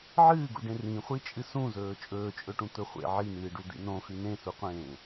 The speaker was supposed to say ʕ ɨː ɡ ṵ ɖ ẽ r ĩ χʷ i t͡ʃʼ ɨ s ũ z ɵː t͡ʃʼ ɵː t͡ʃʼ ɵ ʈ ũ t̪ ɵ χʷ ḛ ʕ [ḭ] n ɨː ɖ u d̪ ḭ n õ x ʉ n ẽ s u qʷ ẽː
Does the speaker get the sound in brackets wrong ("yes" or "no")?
yes